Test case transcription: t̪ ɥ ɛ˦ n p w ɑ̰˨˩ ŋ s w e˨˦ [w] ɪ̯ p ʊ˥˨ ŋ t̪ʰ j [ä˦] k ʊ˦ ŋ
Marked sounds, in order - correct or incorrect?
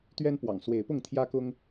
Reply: incorrect: none, correct

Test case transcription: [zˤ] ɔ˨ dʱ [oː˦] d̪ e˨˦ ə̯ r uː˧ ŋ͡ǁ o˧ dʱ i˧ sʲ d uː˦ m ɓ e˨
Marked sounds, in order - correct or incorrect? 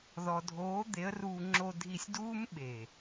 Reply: incorrect: ð, incorrect: oː˨˦

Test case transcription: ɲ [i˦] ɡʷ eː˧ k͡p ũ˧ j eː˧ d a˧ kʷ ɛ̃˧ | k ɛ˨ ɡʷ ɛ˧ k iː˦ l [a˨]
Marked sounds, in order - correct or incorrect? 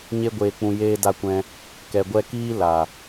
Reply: incorrect: e˦, correct

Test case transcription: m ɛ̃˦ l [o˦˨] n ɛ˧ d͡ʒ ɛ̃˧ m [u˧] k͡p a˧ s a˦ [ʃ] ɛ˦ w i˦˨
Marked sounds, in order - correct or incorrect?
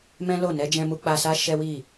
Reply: correct, correct, correct

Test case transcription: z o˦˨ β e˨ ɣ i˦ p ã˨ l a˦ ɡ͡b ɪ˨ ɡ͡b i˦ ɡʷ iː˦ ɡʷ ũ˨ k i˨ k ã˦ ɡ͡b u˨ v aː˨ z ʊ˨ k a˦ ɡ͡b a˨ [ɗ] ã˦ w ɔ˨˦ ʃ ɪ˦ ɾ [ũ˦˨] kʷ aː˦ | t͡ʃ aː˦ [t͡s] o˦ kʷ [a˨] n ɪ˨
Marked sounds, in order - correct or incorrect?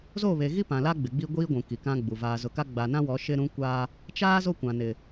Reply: incorrect: n, incorrect: ũ˦, incorrect: z, incorrect: ã˨

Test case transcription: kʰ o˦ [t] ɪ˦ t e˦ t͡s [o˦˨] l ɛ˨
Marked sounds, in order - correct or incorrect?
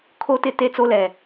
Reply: correct, incorrect: o˦

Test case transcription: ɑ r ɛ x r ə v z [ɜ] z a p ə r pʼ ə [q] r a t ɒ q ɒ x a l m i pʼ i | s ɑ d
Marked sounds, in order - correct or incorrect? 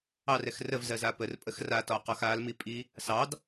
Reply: correct, incorrect: x

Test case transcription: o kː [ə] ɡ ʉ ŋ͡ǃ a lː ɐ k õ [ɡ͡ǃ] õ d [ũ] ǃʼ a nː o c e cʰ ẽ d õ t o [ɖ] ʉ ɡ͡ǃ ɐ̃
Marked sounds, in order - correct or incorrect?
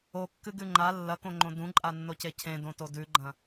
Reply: incorrect: ɨ, incorrect: ŋ͡ǃ, correct, incorrect: d

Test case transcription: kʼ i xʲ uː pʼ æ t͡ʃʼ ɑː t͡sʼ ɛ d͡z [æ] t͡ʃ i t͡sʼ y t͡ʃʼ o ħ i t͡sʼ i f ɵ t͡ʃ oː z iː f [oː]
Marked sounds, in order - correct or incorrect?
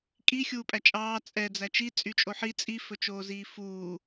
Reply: correct, incorrect: uː

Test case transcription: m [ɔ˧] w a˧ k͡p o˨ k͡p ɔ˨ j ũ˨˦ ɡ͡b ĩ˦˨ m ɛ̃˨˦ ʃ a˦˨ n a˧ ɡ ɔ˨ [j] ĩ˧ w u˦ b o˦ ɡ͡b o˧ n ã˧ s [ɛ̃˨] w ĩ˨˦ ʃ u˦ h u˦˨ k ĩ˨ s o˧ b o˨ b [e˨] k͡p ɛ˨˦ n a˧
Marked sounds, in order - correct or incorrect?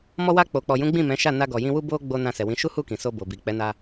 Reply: correct, correct, incorrect: ɛ˨, incorrect: i˨

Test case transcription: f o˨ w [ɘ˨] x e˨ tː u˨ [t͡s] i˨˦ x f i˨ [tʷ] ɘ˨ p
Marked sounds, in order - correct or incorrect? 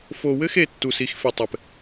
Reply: incorrect: ɘ˦, incorrect: s, incorrect: tˤ

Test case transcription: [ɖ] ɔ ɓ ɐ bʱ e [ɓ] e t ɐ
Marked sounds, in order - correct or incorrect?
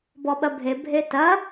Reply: incorrect: b, incorrect: bʱ

